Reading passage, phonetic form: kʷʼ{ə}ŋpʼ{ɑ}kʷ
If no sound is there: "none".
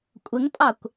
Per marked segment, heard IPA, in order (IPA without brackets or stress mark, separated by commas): ə, ɑ